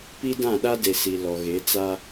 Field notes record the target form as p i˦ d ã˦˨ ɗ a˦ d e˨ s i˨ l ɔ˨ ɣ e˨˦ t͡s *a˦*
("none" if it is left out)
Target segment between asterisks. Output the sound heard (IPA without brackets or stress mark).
a˦